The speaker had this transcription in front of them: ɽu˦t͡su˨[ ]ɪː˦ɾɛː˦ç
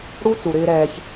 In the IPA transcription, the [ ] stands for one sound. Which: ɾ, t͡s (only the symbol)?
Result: ɾ